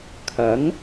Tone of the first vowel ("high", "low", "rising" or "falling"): rising